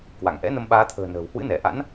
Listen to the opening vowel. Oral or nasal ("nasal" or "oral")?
oral